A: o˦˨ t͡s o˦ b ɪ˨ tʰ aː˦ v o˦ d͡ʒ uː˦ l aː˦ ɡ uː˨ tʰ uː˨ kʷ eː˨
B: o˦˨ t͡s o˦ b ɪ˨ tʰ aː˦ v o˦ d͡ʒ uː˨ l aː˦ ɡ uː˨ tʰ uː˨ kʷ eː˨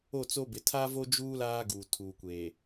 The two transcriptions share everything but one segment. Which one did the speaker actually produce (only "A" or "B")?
A